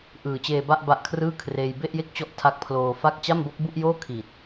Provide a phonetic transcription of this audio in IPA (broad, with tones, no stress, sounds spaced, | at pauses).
ʔ ɯː˨˩ t͡ɕ eː˧ b a˥˩ ʔ b a˦˥ ʔ kʰ r ɯː˥˩ kʰ r eː˧ j b e˥˩ ʔ j e˥˩ k̚ t͡ɕ ɔ˦˥ ʔ tʰ a˦˥ k̚ pʰ l oː˧ f a˥˩ k̚ t͡ɕ a˥˩ m b o˦˥ k̚ b u˥˩ ʔ j oː˥˩ kʰ i˨˩ t̚